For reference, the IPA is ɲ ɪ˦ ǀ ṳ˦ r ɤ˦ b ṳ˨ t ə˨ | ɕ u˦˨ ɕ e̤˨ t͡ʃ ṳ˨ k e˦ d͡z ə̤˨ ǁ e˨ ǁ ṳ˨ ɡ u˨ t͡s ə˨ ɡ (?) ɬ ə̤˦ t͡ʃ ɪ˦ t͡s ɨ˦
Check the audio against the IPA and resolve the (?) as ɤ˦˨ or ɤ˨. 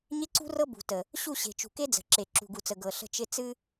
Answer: ɤ˨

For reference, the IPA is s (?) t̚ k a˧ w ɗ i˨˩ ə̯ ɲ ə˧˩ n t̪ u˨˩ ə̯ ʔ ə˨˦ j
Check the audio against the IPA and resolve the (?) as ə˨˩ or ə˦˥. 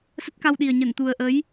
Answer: ə˦˥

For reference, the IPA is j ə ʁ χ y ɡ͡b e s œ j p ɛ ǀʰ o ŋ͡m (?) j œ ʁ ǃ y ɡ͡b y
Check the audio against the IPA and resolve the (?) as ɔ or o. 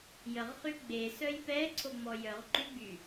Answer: ɔ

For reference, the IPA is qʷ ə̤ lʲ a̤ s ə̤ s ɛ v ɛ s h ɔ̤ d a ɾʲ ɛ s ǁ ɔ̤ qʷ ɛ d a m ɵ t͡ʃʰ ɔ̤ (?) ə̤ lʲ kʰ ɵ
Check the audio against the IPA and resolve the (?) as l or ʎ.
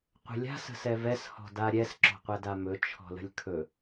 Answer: l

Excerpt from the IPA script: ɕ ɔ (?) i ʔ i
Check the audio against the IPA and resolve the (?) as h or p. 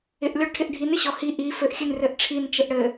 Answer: h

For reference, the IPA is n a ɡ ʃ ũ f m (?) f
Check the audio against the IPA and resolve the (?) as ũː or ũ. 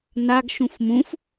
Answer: ũ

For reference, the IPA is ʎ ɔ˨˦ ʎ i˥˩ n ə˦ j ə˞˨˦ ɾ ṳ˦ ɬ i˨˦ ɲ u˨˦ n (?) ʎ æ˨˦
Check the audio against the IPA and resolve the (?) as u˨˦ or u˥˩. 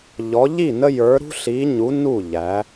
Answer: u˥˩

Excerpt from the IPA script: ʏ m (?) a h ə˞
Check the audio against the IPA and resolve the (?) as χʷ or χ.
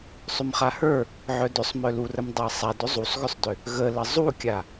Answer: χ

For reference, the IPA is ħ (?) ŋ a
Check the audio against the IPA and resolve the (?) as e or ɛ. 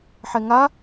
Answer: ɛ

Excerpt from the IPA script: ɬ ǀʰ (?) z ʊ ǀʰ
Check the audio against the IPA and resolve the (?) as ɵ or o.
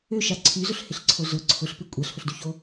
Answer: o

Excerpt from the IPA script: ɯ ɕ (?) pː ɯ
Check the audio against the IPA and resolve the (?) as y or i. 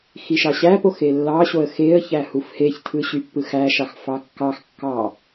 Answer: y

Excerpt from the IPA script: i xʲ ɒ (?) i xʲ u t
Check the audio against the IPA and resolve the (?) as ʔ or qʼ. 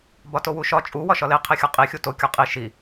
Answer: qʼ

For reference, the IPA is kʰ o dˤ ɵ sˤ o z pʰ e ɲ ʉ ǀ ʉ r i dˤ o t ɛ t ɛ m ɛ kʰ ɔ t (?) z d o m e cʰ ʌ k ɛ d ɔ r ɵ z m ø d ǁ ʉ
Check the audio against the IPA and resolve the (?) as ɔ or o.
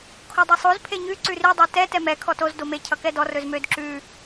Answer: o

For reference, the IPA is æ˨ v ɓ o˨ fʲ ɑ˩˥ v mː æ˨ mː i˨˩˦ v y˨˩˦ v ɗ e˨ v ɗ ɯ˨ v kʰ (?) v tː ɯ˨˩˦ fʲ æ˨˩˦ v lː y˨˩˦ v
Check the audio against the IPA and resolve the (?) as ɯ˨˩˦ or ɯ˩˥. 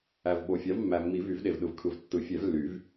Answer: ɯ˨˩˦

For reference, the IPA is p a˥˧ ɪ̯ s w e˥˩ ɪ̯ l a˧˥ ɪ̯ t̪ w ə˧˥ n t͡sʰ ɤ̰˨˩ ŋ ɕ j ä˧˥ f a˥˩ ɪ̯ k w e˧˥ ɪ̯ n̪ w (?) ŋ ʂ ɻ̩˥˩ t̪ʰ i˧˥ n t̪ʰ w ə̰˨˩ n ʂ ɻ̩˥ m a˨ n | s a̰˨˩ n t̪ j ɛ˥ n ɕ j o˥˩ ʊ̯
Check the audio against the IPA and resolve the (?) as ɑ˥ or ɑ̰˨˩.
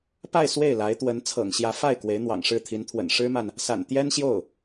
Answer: ɑ̰˨˩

